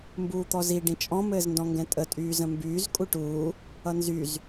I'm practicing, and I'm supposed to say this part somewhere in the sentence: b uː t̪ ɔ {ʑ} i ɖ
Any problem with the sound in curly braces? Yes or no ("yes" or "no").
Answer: yes